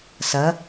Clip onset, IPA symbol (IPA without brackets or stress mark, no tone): s